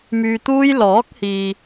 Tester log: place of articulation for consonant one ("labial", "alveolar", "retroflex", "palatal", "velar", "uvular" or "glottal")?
labial